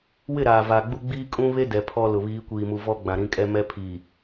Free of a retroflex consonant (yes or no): yes